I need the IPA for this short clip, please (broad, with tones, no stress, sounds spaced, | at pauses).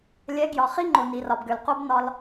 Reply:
lʲ ɛ˨˦ ɡ j ɒ˨ χ i˦ ŋ͡ǃ o˨ n i˨ r ɒ˨ b ɡ ø˨ l q o˦ b n ɒ˧ l